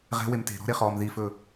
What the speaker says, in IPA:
ʁɛ̤ wemte̤ ɾɔ̤ɾeχɔːm ðifɵ

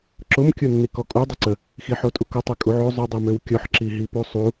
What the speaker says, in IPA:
ǁʊm kʲonːikɔkʼu dˤəǀə | xiħotʼukʊ tˤekʼuʕo zˤʊ dˤimøwkʲɔħ ǁiɦipusˤu

